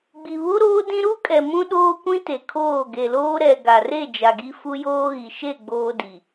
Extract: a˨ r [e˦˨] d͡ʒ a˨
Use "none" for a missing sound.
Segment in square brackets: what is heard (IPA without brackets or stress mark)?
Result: e˦˨